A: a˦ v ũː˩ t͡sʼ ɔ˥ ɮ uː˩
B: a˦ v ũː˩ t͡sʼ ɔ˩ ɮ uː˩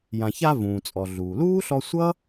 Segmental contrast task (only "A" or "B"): B